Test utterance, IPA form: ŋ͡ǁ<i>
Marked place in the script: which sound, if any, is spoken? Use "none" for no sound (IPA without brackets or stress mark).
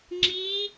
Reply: i